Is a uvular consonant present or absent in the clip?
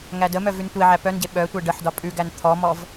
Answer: absent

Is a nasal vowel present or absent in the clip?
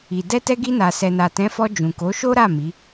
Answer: present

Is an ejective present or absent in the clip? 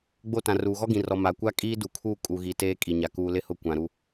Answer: present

